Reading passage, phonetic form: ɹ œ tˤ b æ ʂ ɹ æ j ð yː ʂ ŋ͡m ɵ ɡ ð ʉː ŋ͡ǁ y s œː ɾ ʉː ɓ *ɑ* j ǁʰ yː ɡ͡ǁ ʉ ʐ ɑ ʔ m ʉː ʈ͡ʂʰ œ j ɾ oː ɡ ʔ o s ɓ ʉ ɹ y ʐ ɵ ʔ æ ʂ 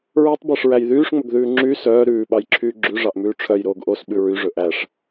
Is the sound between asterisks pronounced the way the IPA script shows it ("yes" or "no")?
yes